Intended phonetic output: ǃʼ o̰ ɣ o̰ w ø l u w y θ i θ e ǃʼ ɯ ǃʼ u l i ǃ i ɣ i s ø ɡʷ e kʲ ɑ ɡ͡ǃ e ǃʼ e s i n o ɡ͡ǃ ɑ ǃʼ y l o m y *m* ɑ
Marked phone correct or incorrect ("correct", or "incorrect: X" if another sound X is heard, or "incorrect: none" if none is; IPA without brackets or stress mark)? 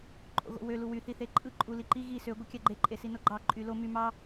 correct